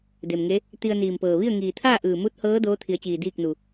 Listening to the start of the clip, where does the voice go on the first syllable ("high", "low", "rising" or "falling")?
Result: low